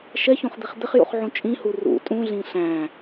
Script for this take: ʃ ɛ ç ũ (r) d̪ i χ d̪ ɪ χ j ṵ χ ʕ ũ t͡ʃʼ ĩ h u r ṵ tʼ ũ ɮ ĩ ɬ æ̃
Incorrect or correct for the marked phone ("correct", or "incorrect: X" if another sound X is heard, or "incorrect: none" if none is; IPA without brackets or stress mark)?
incorrect: χ